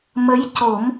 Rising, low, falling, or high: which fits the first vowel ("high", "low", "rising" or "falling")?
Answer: rising